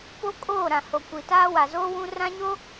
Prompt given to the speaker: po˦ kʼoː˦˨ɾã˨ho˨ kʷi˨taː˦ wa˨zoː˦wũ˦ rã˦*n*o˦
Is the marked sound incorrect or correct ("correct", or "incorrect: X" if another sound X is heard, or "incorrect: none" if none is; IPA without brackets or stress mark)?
incorrect: ɲ